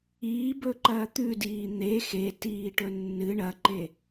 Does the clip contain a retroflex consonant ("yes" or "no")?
yes